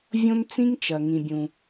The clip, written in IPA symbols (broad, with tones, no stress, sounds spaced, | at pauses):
vʲ õ˥ n t͡s ĩ˥ ŋ t͡ʃ ɐ˩ ŋ ĩ˩ bʲ ũ˩